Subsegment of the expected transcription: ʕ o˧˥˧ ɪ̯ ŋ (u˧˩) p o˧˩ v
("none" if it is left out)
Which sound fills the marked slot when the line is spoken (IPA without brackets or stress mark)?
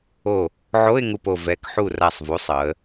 u˧˩